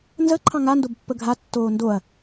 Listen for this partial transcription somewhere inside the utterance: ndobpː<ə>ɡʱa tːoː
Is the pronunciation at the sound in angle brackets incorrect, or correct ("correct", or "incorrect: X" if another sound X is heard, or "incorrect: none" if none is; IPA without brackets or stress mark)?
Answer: correct